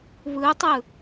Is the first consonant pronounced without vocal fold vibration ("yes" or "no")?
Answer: no